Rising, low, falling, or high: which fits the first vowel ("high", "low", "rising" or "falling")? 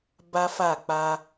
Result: high